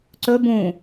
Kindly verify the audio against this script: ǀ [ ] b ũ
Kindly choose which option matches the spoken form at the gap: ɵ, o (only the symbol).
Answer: ɵ